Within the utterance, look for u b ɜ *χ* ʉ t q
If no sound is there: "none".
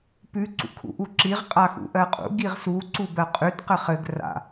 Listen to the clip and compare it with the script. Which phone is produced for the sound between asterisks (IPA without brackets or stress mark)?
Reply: qʼ